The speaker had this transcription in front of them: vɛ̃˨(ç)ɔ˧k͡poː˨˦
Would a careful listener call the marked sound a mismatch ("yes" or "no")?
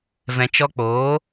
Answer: yes